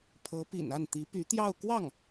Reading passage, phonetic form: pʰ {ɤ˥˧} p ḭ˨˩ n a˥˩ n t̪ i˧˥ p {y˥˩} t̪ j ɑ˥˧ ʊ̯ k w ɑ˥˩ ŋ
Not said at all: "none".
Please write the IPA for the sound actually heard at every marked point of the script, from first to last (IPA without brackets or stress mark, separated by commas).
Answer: ɤ˧˥, y˧˥